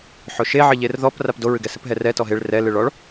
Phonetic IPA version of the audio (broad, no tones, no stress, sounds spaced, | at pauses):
ħ o ʃ e ʕ ɨ ʎ e r ð ɔ p r a p d o ɹ ɨ ɡ ɛ s ɨ p ɦ ɛ r ɛ t ɔ ɦ e ɭ r ɛ l ɨ ɭ ɔ ɭ